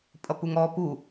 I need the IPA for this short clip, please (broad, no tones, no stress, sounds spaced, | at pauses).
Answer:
pʼ ʌ p u ŋ ɔ p u